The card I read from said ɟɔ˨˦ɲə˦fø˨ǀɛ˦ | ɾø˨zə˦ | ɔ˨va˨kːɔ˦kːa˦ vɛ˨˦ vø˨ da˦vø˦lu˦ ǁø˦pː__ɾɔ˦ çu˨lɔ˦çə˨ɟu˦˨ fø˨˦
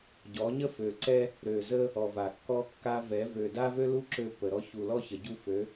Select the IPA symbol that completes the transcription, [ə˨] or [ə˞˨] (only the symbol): ə˨